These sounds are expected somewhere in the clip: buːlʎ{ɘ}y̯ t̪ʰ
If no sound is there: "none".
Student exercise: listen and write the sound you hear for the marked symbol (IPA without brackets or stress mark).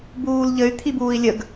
ɘ